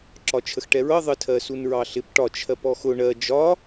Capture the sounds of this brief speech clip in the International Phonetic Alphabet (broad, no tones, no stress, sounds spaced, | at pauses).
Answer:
ǁ ɒ t͡ʃʰ ə x ʈ ɛ ɹ ʌ ðˤ ə tʰ ɜ s u n ɹ ɑ ɬ ɪ p ʈ ɒ t͡ʃʰ ɜ p ɔ x ʊ ɳ ɜ d͡ʒ ɒ